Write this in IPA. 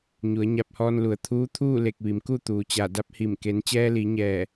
ɲ u˩˧ ə̯ ɲ a˧ p̚ h ɔː˧ n l u˩˧ ə̯ t̪ʰ uː˧˥ t̪ʰ uː˥˨ l e˧˩ k̚ ʋ i˩ m k u˥˨ t̪ uː˩ t͡ɕ a˧˩ d a˧˥ p̚ h i˧˩ m k e˩˧ n t͡ɕ ɛː˧ l i˩˧ ɲ ɛː˧˩

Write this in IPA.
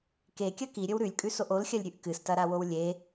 k e kʲ ɐ k i ɾʲ ɵ w ɾ ʉ lʲ kʼ ʉ s o ʔ o l xʲ ɐ lʲ ɾʲ ʉ ʔ k ɨ s t ɐ ɾ a w o w lʲ e

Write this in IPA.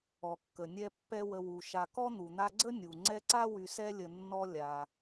ɔ˩ kː ə˩ nʲ ɛ˦ pː ɛ˦ w ə˨ w u˩ ʃ a˨ k ɔ˥ n̪ u˩ n̪ a˦ ɡ͡ǀ ə˥ nʲ u˩ ŋ͡ǀ ɛ˦ ǀ a˥ w y˨ s ɛ˦ lʲ ə˨ nː ɔ˦ lʲ a˩

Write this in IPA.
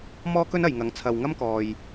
m ɔː˥ k ɵ˥ n ɐ˨ j ŋ ɐ˨˥ ŋ t͡sʰ ɐ˧ w ŋ ɐ˥ m k ɔː˨ j

